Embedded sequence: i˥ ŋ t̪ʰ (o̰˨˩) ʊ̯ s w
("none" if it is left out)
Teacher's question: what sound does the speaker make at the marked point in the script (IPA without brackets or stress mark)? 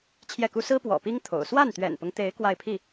o̰˨˩